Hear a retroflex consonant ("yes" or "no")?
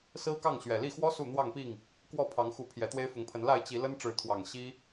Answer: yes